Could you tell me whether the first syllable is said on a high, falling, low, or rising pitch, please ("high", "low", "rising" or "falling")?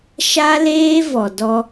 high